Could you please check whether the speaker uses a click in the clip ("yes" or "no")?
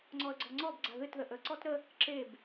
yes